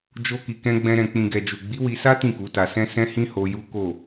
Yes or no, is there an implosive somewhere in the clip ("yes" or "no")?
no